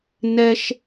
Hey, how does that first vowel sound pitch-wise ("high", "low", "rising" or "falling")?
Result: high